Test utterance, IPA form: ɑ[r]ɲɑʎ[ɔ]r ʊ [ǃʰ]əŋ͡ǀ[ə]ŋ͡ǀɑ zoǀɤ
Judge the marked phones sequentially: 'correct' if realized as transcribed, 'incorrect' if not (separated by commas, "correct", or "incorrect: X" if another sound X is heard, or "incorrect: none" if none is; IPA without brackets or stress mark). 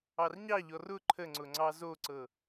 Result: correct, correct, correct, incorrect: ʊ